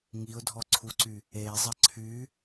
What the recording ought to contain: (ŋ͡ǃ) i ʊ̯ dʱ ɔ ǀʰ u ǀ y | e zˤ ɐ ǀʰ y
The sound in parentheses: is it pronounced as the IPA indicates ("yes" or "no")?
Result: no